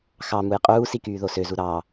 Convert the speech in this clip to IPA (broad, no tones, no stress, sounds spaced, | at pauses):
x ɑ m u j qʼ uː s i k yː ð o s ø z u ɾ ɑ